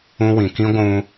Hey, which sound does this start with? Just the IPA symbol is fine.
ũ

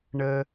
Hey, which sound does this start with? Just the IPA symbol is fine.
ɳ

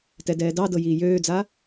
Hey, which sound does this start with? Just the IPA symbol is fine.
t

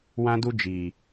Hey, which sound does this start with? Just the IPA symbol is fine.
w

